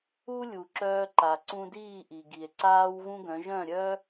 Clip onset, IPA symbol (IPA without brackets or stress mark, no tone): u